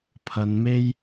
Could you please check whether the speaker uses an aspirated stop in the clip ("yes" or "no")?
yes